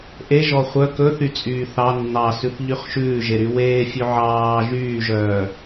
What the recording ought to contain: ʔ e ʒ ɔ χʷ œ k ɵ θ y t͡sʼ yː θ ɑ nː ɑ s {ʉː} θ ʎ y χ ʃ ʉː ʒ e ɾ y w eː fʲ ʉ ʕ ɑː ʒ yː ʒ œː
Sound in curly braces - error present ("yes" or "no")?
yes